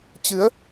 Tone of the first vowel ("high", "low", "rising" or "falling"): rising